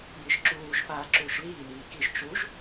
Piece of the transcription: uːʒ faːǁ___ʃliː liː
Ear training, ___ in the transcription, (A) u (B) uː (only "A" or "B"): B